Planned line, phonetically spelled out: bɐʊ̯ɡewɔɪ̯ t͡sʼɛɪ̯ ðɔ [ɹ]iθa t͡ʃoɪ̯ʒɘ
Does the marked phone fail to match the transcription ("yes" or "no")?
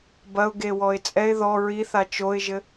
no